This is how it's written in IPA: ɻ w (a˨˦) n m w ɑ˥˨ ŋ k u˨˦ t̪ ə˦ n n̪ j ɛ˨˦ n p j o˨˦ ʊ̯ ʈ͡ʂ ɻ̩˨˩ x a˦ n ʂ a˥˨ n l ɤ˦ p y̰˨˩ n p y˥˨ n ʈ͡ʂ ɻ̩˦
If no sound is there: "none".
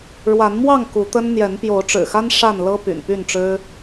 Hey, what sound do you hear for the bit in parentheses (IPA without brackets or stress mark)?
a˨˦